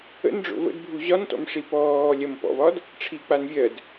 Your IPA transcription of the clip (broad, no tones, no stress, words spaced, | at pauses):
ə̰nɖ͡ʐo̰ və̰dbʱu ʑɒntɔ̰mʂi pɔː lʲɐmpɔ̰vɒd | ʈ͡ʂʰik͡pan vʲɜd